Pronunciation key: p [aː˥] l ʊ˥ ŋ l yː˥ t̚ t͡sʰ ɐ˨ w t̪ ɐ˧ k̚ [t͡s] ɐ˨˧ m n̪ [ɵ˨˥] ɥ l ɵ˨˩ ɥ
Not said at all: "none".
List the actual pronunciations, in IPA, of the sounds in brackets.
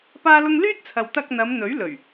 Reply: aː˥, n̪, ɵ˨˥

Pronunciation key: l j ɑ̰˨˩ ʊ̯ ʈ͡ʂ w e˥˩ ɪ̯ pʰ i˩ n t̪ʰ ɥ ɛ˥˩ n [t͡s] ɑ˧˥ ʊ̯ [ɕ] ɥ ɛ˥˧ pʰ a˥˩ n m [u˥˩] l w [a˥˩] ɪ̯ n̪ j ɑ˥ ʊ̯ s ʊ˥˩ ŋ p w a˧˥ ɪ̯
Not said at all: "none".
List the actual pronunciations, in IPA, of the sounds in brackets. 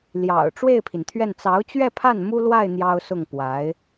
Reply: t͡s, t͡ɕ, u˥, a˥˩

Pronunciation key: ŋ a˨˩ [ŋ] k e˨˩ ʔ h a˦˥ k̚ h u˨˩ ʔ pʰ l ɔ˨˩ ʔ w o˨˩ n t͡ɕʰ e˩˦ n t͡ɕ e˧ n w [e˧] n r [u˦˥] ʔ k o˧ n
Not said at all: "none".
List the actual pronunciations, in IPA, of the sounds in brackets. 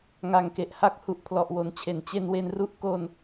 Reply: ŋ, e˧, u˦˥

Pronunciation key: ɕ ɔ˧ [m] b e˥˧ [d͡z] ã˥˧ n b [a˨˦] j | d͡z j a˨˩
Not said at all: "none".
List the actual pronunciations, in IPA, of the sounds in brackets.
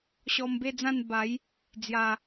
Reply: m, d͡z, a˨˦

